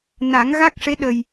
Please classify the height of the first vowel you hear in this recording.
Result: low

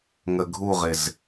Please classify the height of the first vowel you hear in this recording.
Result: mid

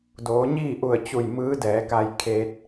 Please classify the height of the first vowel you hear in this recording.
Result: mid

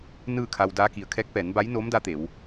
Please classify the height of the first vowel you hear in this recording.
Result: high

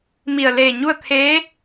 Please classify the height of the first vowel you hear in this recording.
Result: high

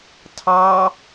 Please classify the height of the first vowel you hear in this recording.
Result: low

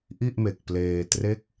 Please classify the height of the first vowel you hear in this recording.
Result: high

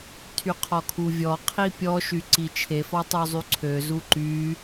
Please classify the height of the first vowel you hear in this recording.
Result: high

